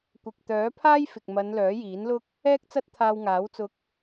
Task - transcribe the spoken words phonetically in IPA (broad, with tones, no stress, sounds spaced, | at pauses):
kʷ ɪ˨ k̚ t̪ œː˨˥ pʰ aː˥ j f ɪ˨ k̚ m ɐ˨˧ n l œː˨˥ j iː˨˥ n l ʊ˥ k̚ | ɛː˥ k̚ t͡s ɐ˥ t̚ t̪ʰ aː˧ w ŋ aː˨˥ w t͡s ʊ˧ k̚